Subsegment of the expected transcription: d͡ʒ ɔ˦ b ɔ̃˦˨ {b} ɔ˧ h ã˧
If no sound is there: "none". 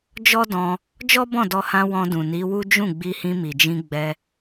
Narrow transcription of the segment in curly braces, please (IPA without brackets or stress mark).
d